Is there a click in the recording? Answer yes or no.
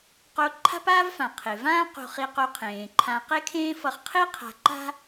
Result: yes